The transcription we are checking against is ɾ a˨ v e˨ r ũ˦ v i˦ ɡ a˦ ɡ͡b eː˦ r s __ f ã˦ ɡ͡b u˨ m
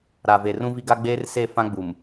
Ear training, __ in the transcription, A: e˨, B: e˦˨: B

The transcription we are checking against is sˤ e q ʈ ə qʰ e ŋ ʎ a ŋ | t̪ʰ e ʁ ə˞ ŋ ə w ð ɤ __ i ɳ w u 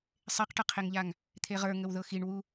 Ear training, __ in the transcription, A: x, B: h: A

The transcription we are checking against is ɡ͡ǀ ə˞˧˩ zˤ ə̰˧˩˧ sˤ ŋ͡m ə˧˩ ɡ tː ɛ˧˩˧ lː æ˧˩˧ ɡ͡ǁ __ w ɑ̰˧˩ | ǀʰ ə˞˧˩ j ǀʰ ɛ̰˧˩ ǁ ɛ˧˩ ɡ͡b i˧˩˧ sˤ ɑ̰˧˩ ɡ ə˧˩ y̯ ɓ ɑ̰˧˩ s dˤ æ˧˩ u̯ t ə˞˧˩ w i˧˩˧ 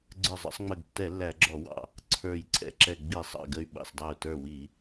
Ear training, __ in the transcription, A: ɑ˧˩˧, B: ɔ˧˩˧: B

